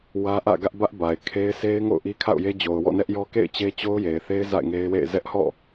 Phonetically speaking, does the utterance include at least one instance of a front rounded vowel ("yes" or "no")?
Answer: no